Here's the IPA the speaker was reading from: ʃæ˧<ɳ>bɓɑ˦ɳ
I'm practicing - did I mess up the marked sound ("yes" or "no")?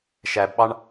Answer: yes